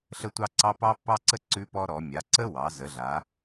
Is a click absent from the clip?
no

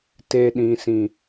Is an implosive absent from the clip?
no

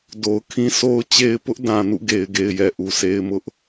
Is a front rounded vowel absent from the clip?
yes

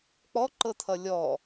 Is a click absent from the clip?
no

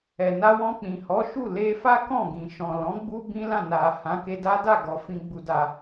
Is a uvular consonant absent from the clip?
yes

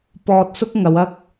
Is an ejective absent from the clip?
yes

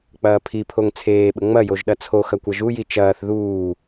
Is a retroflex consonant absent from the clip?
yes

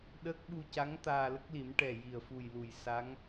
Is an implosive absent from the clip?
no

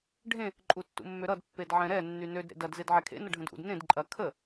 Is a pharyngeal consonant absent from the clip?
no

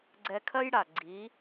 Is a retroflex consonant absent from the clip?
no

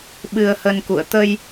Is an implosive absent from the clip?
no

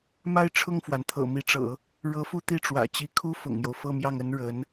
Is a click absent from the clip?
yes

